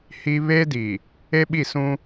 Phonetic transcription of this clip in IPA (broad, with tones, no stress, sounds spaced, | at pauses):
h i˦ β eː˦ d i˨ | e˦ ɓ i˦˨ s ũ˦